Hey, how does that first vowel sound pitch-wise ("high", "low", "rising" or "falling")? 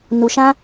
low